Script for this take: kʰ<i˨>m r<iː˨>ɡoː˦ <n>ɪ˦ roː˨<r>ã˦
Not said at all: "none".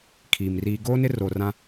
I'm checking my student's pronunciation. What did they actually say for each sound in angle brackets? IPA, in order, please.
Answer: iː˨, iː˨, n, r

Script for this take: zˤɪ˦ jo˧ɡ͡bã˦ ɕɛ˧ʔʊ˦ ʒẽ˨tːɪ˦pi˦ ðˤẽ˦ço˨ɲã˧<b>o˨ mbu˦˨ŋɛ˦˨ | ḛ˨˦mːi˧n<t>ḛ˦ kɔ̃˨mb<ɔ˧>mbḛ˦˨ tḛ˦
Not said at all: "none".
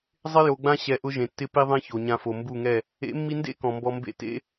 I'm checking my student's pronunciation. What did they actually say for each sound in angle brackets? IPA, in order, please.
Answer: f, d, ɔ˧

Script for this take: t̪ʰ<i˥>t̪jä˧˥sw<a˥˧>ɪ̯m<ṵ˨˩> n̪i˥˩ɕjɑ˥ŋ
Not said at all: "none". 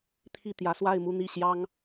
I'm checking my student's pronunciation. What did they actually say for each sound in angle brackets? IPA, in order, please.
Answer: i˥˩, a˥˧, u˥˧

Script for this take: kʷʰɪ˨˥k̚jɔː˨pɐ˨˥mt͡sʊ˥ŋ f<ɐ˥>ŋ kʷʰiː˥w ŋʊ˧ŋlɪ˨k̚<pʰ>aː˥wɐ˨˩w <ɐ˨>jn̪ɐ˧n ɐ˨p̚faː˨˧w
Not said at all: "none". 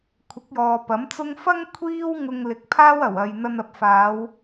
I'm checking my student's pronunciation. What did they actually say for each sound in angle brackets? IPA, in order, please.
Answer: ɐ˥, pʰ, ɐ˨

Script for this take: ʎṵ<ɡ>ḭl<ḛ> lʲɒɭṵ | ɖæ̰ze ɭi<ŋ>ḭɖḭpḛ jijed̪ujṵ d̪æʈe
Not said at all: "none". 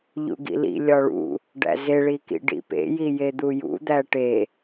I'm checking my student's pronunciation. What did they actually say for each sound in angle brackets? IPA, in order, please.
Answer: ɡ, ḭ, k

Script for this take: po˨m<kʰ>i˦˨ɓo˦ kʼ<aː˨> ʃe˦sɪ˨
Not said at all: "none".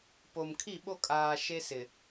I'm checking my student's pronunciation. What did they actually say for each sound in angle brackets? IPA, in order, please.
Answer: kʰ, aː˨

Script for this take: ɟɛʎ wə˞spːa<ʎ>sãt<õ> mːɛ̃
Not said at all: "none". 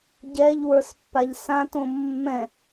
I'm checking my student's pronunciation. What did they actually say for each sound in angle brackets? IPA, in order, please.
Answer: ʎ, õ

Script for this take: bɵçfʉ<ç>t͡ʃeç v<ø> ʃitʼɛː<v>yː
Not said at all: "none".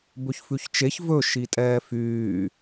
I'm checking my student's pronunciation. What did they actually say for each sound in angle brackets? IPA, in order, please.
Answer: ç, ɵ, f

